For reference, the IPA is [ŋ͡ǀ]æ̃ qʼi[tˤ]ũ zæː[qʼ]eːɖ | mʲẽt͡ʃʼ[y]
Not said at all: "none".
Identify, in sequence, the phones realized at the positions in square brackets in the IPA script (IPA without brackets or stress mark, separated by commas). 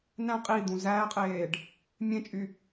n, d̪, qʼ, y